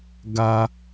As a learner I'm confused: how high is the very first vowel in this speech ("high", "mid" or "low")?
low